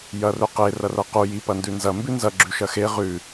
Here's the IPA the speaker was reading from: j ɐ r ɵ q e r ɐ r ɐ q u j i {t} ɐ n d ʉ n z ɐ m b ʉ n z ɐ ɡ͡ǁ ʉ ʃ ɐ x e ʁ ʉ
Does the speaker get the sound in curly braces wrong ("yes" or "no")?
yes